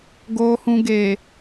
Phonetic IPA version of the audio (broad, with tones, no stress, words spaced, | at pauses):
ɡoː˨hũ˨ ɡe˨